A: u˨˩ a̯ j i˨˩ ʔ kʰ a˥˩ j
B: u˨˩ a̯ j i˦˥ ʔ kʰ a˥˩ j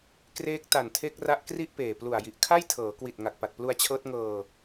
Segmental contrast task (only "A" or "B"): A